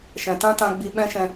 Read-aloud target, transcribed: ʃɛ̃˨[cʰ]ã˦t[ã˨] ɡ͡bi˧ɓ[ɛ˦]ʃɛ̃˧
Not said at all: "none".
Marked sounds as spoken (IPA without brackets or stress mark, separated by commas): t, ã˧, ɛ̃˦